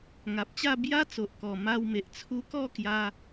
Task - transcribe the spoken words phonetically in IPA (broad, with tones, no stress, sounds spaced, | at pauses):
ŋ a˨ p̚ t͡ɕ a˥˧ b j a˦ t͡s o˨ ʔ k ɔ˨˩ m a˧ w m e˨ ʔ t͡sʰ u˧ k ɔ˥˧ k j a˧